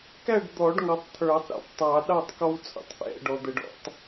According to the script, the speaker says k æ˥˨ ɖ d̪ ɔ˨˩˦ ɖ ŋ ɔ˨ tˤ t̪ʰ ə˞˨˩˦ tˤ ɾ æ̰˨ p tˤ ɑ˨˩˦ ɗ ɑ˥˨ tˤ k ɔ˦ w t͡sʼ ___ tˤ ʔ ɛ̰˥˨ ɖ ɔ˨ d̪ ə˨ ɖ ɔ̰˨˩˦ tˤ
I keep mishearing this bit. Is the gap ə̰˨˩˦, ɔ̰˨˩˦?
ə̰˨˩˦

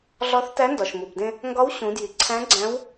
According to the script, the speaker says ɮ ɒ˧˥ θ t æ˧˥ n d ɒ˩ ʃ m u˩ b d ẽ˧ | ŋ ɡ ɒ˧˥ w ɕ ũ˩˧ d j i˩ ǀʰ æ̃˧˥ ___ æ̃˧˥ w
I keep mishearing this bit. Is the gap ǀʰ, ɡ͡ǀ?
ɡ͡ǀ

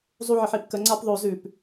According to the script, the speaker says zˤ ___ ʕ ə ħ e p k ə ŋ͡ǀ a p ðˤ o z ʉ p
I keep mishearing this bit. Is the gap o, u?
u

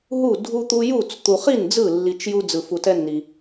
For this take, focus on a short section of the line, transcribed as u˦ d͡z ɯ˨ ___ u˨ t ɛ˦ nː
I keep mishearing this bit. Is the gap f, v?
f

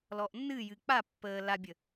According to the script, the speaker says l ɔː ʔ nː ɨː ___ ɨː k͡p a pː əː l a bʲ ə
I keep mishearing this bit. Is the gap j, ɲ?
j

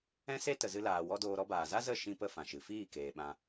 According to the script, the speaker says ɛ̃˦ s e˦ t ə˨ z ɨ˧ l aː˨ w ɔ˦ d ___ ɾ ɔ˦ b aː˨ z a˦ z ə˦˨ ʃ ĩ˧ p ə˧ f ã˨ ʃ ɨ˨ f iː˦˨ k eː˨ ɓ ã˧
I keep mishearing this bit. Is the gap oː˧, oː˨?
oː˧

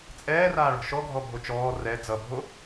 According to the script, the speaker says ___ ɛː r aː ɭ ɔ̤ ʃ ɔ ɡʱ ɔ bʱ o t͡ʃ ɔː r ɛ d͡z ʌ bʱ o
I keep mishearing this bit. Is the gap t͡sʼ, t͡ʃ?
t͡sʼ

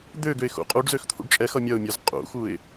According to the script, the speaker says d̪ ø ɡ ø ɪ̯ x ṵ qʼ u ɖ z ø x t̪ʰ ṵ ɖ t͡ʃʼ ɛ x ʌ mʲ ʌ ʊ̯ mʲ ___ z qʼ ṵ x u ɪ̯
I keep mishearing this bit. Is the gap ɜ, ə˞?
ə˞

